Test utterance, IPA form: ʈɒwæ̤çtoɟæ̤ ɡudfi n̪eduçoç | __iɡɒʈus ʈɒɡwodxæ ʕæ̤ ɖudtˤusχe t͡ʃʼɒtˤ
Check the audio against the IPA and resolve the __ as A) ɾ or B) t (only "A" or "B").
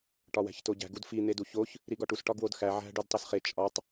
A